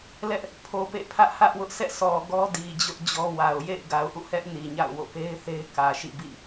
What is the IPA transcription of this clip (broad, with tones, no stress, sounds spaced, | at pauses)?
l ɛ˦ ʔ | pʰ o˨ p ḛ˦˨ pʰ ä˦ ʔ h ä˦ ʔ w ʊ˦ ʔ s ɛ̰˦˨ sʰ ɔ˨ ɡ ɔ˦ d i˨ d͡ʑ ʊ˦ ʔ d͡ʑ ɔ˦ w a˨ ʊ̯ j ḛ˦˨ ɪ̯ ɡ a˨ ʊ̯ ʔ ṵ˦˨ h ɛ˦ ʔ n i˨ ɲ a̰˦˨ ʊ̯ w o̰˦˨ p e˦ ɪ̯ θ e˦ ɪ̯ k ä˨ ʃ ḭ˦˨ b ḭ˦˨